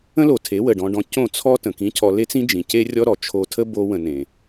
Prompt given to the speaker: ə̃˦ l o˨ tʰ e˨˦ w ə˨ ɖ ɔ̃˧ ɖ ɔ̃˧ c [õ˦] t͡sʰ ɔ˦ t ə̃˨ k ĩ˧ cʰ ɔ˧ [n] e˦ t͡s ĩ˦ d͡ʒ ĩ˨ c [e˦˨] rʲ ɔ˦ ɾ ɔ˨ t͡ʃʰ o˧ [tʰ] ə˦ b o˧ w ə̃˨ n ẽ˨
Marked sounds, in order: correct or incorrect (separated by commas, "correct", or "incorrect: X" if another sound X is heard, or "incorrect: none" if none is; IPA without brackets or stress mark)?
incorrect: õ˦˨, incorrect: l, incorrect: e˦, correct